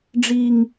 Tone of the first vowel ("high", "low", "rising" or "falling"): high